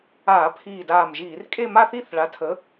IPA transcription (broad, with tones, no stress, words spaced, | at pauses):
aː˧˩˧pʰiː˧˩ daː˧˩mʒiː˧˩˧r kʼe˥˧ma˥˧θi˥˧θ ɭa˨˥tʰə˨˥